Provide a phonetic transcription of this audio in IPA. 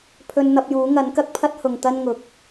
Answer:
pʰ ɵ˧ n n̪ ɐ˧ p̚ j uː˨˥ ŋ ɐ˨˥ n k ɐ˥ k̚ pʰ ɐ˥ t̚ h ʊ˨ ŋ t̪ ɐ˥ n ŋ ʊ˨˥ k̚

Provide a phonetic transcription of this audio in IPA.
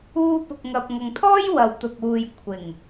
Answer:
uː˧ p ʊ˨ k̚ ŋ ɐ˨ p̚ ŋ ɐ˨ ŋ t̪ʰ ɔː˥ j w ɐ˨ w t̪ ʊ˨ k̚ uː˨ j kʷʰ ɪ˨˩ ŋ

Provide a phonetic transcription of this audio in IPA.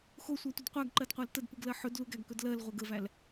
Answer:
x o sʷ æ tʷ ə d qʷ æ ɡ ǃ ɜ d qʷ æ l t ə d p ɯ ɡ l ɜ ħ ɵ d l u ɡ æ ɡ k ɵ d l ɜ l ʁʷ ɛ ɡ ə v æ l

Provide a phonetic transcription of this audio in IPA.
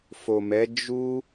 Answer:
f o˨ m ɛ˨˦ d͡ʒ u˦

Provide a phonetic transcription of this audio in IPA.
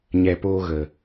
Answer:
ɲ ɛ˨ p oː˧ ɣ ə˨

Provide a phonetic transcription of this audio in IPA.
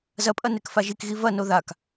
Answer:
z ɐ pʼ ɐ n e k f a ʒ i k ɣ i v ɐ n o ð a k

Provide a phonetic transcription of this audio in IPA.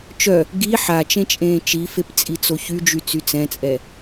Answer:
t͡ʃ œ | ɡ i ħ a t͡ʃ ẽ t͡ʃʼ ẽː t͡ʃ i f e p t͡sʼ i t͡s o ç y d͡ʒ y t͡s y t͡s ɛ̃ t͡sʼ ɛ

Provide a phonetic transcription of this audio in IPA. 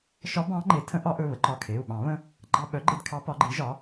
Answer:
ʃ ɒ˧˥ b ɑ̃˧˥ ŋ͡ǃ e˩˥ tʰ ə̃˧˥ ʔ ɒ˧˥ ʔ ɵ˩˧˩ β ə˩˥ ǃ ɒ˩˧˩ kʰ e˩˧˩ u̯ ɓ ɑ̃˨˩˦ β ə̃˧ | ɡ͡ǃ ɑ˧ ɓ œ˩˥ ɡ͡ǃ e˧ d kʰ ɑ˧˥ p ɒ˩˥ ɡ͡ǃ i˩˥ ʒ ɒ˩˥

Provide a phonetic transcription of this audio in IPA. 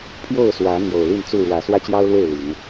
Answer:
pʰ j o˥˨ ʊ̯ s w ä˨˦ n̪ j o˨˩ ʊ̯ l i˥˨ n t͡s u˥˨ ɻ w ä˨˦ s w ä˦ t͡ɕ j ɑ˦ ʊ̯ l w e˥˨ ɪ̯ l i˨˦ ŋ

